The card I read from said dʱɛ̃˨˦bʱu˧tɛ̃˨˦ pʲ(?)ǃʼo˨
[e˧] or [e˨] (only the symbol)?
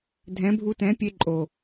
e˧